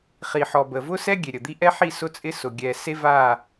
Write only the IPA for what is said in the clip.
χi˨ħɔ˨bə˨vʊ˦ sɛ˦ ɡʲe˨ɾʲə˨d̪i˦ ʔɛ˦ħi˦˨ sʊ˦t͡sʼɪ˦sʊ˨ ɡʲɛ˨ se˦va˦˨

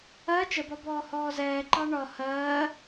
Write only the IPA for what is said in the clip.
ɜ t͡ʃəbɒbɔː hɔːzɛːǃɑ ɳɒ hɜː

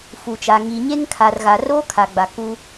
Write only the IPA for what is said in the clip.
fu˨t͡ʃa˨ ŋi˨ɲe˦ŋkʰa˨r ɣa˨roː˦kʰa˨ ɡ͡ba˨kuː˦

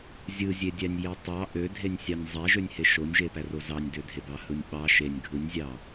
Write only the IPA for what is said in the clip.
zʲɯzʲedʲænʲ jetˤɑ ʔødʱenʲ sʲɑnʲzˤæʒønʲhe ʃonʲʒepæro zɑnʲdødʱebɑ hɯnʲɓɑ ʃenʲ ɡʱɯnʲzʲɑ

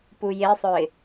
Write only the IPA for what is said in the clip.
pujesˤœɪ̯

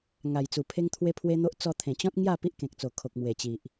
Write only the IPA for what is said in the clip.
ŋa˨˩jt͡su˨˩pʰe˦ŋ t̪ʰwe˦pʰwe˦n̪o˦ʔ t͡sɔ˧t̪ʰẽ˨˩t͡ɕɔ̃˦t̚ ŋja˥˧ pi˦ʔkẽ˨k̚t͡so˨˩ kʰo˨k̚mwe˨˩t͡ɕi˨ʔ

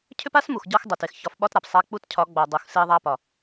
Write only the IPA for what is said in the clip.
cʰʏ˦pa˦smu˨x ɟɒ˦xdˤe˨t e˨xçɒ˨˦fɓɒ˦t ɾa˨psˤa˦ k͡pu˦tcʰɒ˨˦ ɡ͡bɒ˨dˤu˨x se˦ðˤa˦pɒ˨

